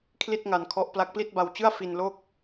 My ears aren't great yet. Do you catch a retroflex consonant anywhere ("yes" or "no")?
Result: no